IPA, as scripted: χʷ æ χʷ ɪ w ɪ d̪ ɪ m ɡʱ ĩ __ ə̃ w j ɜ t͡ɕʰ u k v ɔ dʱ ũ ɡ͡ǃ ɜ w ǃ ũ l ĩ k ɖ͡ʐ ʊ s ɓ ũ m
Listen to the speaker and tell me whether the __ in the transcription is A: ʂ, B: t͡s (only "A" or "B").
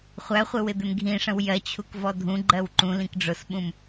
A